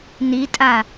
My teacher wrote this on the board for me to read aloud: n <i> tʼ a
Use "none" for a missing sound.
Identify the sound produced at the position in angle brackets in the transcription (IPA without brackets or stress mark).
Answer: i